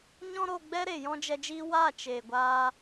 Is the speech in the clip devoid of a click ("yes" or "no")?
yes